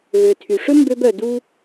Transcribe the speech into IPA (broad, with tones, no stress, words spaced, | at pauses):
ɣø˩ tʰy˩ʂɵ˥ mbø˧bœ˩ du˧